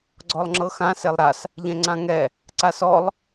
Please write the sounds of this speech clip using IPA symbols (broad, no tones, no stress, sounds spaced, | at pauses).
ɡ͡ǀ ɔ lˠ ŋ͡ǁ ɤ x ã s e lˠ ɾ a s | ʎ ɛ̃ ŋ͡ǀ ã ŋ ɛ | ǀ a s ɔ lˠ